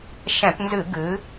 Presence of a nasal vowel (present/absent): present